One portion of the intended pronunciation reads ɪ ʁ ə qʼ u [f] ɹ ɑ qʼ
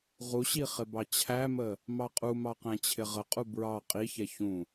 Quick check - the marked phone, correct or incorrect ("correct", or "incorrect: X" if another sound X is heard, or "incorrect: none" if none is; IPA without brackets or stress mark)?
incorrect: b